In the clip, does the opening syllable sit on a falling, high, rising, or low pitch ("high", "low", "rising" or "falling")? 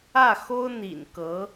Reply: falling